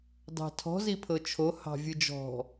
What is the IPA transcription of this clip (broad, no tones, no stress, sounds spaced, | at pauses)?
d ɑ̤ tʰ ɔ̤ z i pʰ ɤ t͡ʃʰ o h ɑ̤ vʲ ɨ d͡ʒ ɔ̤